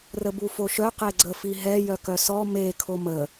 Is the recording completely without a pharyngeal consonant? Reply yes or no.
yes